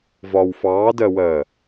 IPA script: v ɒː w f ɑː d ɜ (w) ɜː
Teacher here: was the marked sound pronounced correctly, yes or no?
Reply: yes